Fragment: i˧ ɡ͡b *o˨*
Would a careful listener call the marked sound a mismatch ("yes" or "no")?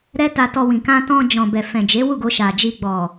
yes